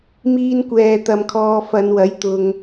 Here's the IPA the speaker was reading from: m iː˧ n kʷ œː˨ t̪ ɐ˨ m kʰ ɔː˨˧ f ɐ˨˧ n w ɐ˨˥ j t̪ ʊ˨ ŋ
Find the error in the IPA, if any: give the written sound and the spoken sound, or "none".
œː˨ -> ɛː˨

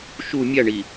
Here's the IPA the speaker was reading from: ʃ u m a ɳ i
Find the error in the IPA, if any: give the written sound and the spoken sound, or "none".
m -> mʲ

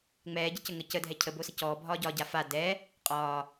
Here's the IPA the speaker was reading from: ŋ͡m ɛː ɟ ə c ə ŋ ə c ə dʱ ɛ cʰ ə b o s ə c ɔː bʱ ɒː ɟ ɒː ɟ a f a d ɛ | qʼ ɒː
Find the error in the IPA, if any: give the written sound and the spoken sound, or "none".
none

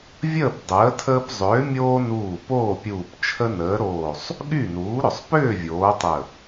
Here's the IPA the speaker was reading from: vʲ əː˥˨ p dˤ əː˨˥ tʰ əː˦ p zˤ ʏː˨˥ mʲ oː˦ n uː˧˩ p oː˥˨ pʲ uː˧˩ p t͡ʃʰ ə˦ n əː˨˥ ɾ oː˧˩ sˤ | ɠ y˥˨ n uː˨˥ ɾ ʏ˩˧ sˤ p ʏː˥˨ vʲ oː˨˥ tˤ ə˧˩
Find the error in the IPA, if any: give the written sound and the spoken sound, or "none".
none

